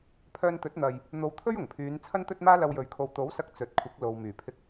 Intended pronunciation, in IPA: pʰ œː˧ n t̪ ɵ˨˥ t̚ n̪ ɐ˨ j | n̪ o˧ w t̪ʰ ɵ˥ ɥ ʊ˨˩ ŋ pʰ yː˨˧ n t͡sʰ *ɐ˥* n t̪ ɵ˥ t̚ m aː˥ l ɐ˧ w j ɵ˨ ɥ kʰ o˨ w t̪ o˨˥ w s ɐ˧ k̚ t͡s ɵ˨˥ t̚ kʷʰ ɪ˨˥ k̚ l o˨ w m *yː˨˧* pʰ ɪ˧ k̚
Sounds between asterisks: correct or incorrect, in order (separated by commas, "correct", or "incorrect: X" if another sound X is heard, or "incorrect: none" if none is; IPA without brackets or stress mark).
correct, incorrect: yː˨˩